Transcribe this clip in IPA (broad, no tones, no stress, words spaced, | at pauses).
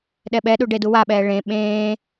ɗɛɓɛɗu ɖeduwaɓɛː ɭẽ ɓẽː